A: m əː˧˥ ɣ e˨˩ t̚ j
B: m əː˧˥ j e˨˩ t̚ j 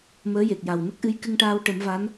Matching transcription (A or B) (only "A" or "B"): B